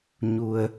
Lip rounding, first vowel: rounded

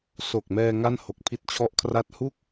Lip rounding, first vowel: rounded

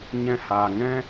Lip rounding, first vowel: unrounded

